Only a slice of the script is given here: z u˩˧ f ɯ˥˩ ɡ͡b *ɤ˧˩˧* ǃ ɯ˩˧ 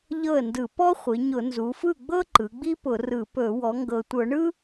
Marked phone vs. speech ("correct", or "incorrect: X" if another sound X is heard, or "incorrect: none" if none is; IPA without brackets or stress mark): incorrect: ɤ˥